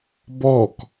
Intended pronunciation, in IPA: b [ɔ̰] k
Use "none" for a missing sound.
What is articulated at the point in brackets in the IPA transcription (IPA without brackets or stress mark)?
ɔ